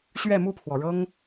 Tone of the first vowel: falling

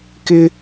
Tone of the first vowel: high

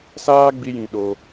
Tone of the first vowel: high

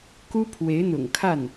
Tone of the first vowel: high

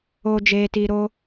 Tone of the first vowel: low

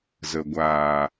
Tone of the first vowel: low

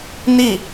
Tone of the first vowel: falling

